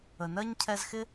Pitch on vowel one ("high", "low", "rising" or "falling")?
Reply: low